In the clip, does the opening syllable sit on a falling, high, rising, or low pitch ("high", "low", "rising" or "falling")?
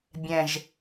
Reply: low